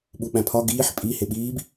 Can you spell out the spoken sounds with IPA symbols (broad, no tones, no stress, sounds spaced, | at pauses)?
ɓ u ɓ æ̃ pʰ ɒ ɡ iː ħ pʼ i h e ɓ iː b